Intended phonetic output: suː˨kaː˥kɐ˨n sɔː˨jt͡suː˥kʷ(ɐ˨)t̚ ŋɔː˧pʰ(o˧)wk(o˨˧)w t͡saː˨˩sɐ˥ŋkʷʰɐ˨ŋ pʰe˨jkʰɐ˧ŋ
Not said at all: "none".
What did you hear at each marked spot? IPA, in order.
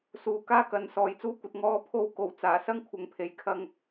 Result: ɐ˧, o˧, o˨˩

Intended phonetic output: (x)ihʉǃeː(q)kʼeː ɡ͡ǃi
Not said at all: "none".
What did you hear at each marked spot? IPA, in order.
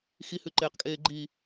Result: x, q

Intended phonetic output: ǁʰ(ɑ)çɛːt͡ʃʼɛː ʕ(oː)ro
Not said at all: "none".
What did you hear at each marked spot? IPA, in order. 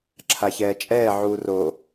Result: a, uː

